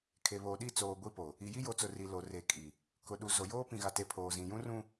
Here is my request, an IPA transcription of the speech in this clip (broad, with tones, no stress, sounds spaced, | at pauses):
kʰ e˨ β oː˨ ɗ i˦˨ t͡s oː˨ ɡʷ i˦ p o˨ | i˨ j i˦ j o˨ t͡s ʊ˨ r i˨ l o˨ r e˨ kʼ i˨ | k ʊ˨ ɗ u˨ z o˨ j oː˦ p ĩ˨ ɣ a˨ t e˨ pʰ oː˨ z ĩ˨ j ũ˦ r ũ˦